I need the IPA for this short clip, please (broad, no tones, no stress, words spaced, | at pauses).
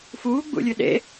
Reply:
fuːɡ͡bṵlʲɨ ɗḛ